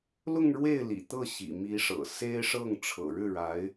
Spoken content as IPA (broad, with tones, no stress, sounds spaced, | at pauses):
l ʊ˥˧ ŋ ɻ w e˥˩ ɪ̯ l ḭ˨˩ t̪ ɤ˥˩ ɕ ḭ˨˩ m i˧˥ ʂ ɤ̰˨˩ s e˥ ɪ̯ ʂ ɤ˥˩ ŋ ʈ͡ʂʰ ɤ̰˨˩ ɻ ɻ̩˥˩ ɻ a˧˥ ɪ̯